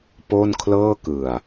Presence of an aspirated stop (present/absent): present